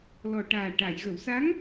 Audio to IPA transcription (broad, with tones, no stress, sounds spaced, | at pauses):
l ɔ˨˩ ʈ aː˨˩ ʈ a˨˩˨ j ɣ ə˨˩˨ w s a˧˥ ŋ